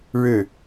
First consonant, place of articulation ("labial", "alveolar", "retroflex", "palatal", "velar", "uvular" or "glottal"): retroflex